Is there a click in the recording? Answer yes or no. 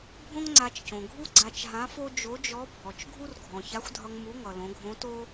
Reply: yes